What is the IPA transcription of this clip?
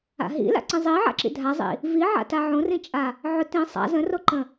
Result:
a̰ ɦ ḭ l a̰ ǀ ĩ zˤ i ʕ a̰ ǁ ḭ dʱ a zˤ ḭ | v i ʕ a̰ t a ʕ õ r ĩ t͡ʃʼ a | ʕ ʊ t ĩ sˤ a̰ z ə̃ r o ǃ ə̃

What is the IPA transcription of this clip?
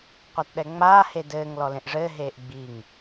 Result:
qʷ a t ɗ ɛ ŋ͡m aː h e d ɘː ŋ l ɔ l ẽ ʔ ʐ ɘː ɦ eː ʔ ɡ͡b i ŋ

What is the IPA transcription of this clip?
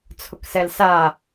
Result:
t͡sʰ ʊ k s ɛ l s a

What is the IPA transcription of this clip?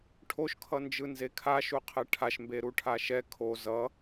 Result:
ʈʰ o ʃ kʰ ʌ n d͡ʒ ɯ n z e kʰ a ʃ u qʰ e ʈʰ a ʃ m b e ɾ u ʈʰ a ʃ ɛ kʰ o z ʌ

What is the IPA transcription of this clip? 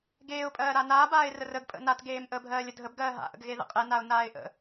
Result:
ɡ eː ʊ̯ pʼ ɜː ɾ a n aː b aː ɪ̯ r ə r ə ɡ pʼ ə̰ n a t ɡ eː m ʔ əː bʱ ɜː lʲ ə dʱ ə b ɡ ɜː ɦ a̰ ʔ ə̰ ɡ ɣ e ð ə̰ qʼ ɛ n a ʊ̯ n aː ɪ̯ ʔ ə̰

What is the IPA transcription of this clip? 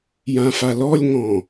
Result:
j ã f a l ɔ lʲ ŋ ɔ̃

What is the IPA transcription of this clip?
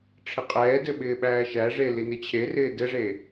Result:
ʈ͡ʂʰ ɪ qʼ ɛː d ɘ ɓ ɪː ɓ æː ʃ æ ʐ e l i n ɪ t͡ɕʰ e r ɪː d ɘ ʐ e

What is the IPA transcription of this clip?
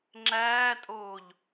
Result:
ŋ͡ǁ æː tʼ oː ʎ

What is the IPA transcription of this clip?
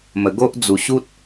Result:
m ə˨˩ ɡ o˦ ʔ d͡z u˨˩ ɕ u˦ t̚

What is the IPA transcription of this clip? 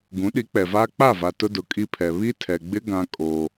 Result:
ɡ ũ˨˦ ɗ i˨˦ k͡p ɛ˨ v aː˦ k͡p a˦˨ v a˨ t ʊ˦ d ʊ˨ kʼ i˦ pʰ ɛ˨ β i˦ tʰ ɛ˨ ɡ͡b ɪ˦ ɡ ã˦ kʼ o˦

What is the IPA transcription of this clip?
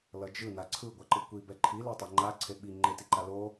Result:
l ʌ d͡ʒ ɯ n a ǀʰ ɯ ɡʷ a ǃ ɯ kʷ i b ɛ ǃʰ i l e tˤ ɛ ŋ͡ǃ a ǀʰ e ɓ i ŋ͡ǃ e t i ǃ a l o

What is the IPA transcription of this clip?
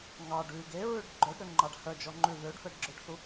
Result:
ŋ ɑ ɖ ʉ ɡ e ɹ ʉ ɖ ɡ͡ǃ œ ɖ ɾ ø ŋ͡ǃ ɑ ɖ h œ d͡ʒ ɔ ŋ͡ǃ ʉ ð ø ɖ f ɛ ɖ ɡ͡ǁ ø ɖ θ u

